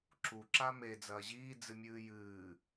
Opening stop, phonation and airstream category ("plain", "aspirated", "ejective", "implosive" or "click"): click